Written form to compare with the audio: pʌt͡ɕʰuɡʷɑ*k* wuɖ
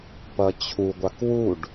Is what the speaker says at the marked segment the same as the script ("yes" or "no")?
yes